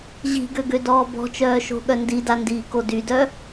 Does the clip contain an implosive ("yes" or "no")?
yes